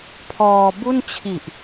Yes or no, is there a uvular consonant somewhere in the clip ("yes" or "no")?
no